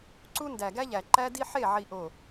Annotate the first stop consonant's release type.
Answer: click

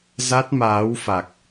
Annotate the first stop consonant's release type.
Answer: plain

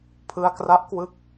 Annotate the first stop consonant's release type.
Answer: aspirated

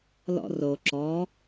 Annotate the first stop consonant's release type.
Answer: click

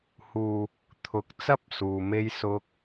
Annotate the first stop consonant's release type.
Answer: aspirated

